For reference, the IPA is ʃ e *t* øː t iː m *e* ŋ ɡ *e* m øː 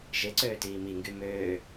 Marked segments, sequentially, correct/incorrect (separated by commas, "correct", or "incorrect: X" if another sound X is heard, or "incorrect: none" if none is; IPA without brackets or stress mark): incorrect: ǀ, incorrect: i, incorrect: y